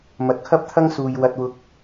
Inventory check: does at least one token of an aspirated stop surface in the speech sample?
yes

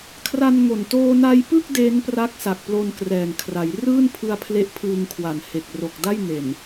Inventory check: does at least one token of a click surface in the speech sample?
no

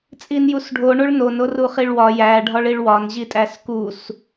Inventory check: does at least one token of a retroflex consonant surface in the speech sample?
yes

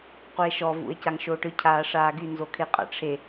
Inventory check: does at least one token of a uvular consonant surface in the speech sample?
yes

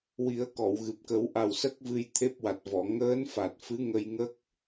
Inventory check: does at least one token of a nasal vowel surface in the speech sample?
no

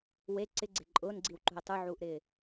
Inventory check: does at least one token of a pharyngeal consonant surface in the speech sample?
yes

